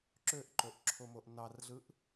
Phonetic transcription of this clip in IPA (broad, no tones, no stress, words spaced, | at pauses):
ǁøʔǃoʔǁʰomoʔ nɑrɮɯʔ